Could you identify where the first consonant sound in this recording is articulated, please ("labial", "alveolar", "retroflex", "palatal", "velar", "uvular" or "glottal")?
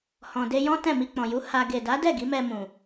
glottal